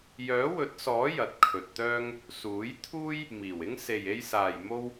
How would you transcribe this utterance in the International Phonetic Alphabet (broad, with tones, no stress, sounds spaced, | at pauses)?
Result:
j œː˨˥ w ɵ˨˥ t̚ s ɔː˨˥ j ɐ˨ t̚ kʰ ɵ˨ t̚ t̪ œː˥ ŋ | s uː˨˥ j t̪ʰ uː˥ j | m iː˨˩ w ɪ˥ ŋ s e˨ j e˧ j s aː˨ j m o˥ w